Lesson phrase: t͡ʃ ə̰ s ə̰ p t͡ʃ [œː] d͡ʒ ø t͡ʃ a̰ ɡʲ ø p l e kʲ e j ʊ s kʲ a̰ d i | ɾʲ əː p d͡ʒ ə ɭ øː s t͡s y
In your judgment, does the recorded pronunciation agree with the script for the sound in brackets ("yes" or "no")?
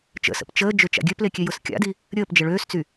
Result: no